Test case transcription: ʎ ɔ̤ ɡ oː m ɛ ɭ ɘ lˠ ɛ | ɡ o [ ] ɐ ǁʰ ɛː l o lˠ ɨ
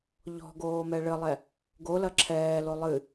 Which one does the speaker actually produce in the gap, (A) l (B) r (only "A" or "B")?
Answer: A